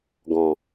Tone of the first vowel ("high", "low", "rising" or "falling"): low